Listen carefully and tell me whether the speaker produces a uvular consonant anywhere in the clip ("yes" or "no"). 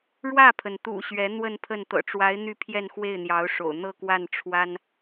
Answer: no